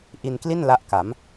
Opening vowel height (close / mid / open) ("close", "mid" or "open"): close